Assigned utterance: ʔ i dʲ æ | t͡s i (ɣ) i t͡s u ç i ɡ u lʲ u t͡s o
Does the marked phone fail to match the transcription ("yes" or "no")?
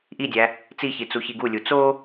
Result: yes